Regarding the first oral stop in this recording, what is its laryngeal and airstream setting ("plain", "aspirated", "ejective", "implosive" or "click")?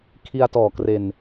aspirated